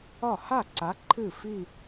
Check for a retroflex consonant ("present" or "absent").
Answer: absent